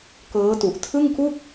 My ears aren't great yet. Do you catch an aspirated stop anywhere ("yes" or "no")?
yes